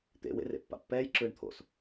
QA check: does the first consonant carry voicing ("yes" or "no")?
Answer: no